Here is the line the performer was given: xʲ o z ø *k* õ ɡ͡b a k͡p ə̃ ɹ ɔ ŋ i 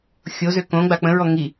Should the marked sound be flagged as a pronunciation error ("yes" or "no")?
no